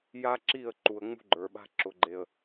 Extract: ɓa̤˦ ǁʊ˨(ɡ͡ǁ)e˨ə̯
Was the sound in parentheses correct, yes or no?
no